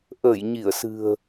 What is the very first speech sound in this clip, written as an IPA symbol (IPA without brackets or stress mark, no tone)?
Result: ʔ